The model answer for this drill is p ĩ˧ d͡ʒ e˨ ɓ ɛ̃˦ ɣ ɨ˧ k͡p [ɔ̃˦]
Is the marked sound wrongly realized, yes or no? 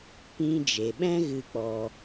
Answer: yes